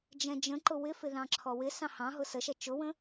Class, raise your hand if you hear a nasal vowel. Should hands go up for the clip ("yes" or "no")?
yes